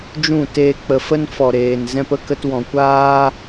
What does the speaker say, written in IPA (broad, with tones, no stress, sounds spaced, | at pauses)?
d͡ʒ ũ˦˨ t eː˧ k͡p ə˨ f ə˦ n f ɔ˨ ɾ eː˨ n z ɛ̃˧ p ə˦ k ə˧ t w ɔ̃˨ kʷ aː˦